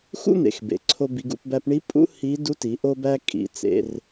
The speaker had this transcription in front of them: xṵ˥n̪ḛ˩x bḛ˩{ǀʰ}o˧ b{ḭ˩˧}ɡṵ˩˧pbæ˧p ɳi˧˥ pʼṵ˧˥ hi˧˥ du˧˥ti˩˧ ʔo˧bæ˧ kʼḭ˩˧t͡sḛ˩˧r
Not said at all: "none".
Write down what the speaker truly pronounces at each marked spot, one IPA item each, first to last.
ǀʰ, i˩˧

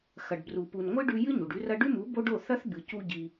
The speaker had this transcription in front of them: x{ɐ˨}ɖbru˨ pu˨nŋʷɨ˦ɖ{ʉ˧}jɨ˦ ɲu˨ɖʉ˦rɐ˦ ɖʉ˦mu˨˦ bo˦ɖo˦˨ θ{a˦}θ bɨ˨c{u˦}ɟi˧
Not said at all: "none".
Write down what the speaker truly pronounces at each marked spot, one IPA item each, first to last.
ɐ˨, ʉ˧, ɐ˦, u˦

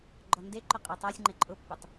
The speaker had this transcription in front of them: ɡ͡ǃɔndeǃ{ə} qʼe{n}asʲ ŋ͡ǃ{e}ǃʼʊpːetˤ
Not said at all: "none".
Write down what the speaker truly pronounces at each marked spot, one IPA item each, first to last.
ʊ, tˤ, e

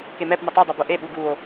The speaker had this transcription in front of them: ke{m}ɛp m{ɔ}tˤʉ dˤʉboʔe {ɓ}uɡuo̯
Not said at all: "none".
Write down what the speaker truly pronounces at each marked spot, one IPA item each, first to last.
m, ə, ɓ

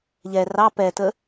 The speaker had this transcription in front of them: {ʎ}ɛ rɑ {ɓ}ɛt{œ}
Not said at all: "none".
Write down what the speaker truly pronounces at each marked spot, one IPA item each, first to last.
ʎ, p, ə

